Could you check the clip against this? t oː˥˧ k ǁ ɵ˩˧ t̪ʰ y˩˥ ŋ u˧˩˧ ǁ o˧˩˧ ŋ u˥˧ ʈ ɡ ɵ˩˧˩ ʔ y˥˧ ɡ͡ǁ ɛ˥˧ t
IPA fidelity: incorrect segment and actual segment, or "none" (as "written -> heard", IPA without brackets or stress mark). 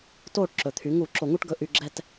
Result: k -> ʈ